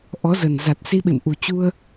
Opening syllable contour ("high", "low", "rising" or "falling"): rising